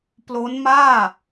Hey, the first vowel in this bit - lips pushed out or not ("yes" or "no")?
yes